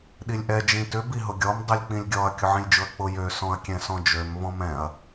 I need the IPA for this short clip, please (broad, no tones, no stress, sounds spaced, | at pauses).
ɗ i lʲ ʔ ɛ d͡ʒ ĩ t ʏ b i ɦ ʊ ɡʲ ɔ m dˤ i lʲ k͡p ĩ lʲ ɡʲ ɔ ɐ̯ kʲ ʊ ʕ ĩ lʲ d͡ʒ ʊ ɐ̯ k͡p ʊ j ø s ɔ̃ ɐ̯ kʲ ɛ̃ s ɔ̃ d͡ʒ ø m v ɔ̃ m ɛ̃ ɐ̯